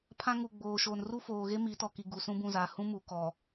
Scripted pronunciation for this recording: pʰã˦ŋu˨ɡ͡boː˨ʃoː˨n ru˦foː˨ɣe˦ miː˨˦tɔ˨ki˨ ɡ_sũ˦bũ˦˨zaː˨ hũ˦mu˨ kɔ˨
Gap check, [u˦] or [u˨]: u˨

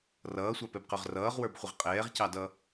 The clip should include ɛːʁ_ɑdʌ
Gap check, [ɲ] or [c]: c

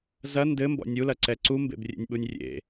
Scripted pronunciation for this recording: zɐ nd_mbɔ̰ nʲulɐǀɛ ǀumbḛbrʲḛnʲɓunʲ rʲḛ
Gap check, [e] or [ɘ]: ɘ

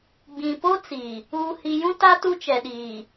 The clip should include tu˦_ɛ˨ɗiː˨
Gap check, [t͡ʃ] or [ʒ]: t͡ʃ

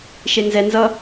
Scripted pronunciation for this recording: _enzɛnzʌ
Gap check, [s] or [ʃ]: ʃ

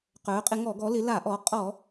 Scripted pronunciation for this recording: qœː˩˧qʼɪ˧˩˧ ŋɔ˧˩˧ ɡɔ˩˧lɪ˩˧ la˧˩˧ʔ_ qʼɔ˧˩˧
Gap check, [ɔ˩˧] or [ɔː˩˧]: ɔː˩˧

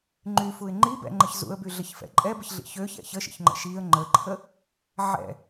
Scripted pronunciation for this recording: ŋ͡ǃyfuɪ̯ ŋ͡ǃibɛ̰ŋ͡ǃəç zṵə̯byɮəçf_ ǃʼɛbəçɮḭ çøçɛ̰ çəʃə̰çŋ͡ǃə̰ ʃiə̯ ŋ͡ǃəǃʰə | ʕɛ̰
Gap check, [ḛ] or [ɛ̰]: ɛ̰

